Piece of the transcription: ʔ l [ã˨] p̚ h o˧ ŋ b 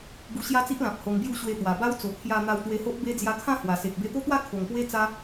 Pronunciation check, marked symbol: correct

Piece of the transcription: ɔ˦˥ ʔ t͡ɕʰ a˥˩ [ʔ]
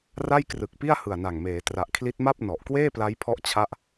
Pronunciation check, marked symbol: correct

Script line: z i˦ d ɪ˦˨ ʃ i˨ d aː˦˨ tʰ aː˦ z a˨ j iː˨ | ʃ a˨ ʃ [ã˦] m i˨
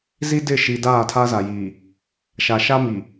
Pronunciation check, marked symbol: incorrect: a˦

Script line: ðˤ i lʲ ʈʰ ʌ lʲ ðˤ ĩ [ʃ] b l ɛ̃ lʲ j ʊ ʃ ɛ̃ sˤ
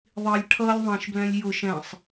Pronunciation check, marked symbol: correct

